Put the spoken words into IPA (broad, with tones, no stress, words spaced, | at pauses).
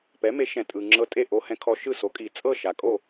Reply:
pɛ˩˥me˩˥ ʃɛ̃˩tʼɯ˩ ŋ͡ǁɤ˧tʼe˥˩ʔo˧ hɛ̃˧kʰɔ˧ ʃɯ˥˩so˩˥kʼi˩ t͡sʼɤ˥˩ ʃa˩ kʼo˥˩